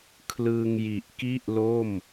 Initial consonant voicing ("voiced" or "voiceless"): voiceless